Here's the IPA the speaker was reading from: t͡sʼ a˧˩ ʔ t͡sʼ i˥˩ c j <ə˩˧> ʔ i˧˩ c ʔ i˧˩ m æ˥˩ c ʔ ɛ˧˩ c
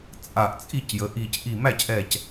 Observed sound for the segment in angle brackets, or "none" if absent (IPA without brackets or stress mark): ə˩˧